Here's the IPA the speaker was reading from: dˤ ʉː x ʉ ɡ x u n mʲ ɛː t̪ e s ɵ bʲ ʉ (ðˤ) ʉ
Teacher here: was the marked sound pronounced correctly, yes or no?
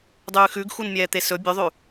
yes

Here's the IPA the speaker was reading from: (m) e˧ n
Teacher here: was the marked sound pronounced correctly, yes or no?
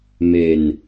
yes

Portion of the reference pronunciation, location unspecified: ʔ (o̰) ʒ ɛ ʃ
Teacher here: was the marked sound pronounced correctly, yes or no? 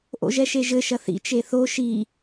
yes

